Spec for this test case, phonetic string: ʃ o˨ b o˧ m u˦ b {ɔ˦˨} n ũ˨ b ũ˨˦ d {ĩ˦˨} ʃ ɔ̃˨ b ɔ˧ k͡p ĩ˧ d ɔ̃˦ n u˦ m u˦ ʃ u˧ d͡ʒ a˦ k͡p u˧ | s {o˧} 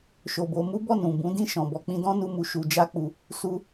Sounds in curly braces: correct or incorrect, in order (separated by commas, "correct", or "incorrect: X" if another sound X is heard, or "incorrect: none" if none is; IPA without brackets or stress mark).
correct, correct, incorrect: u˧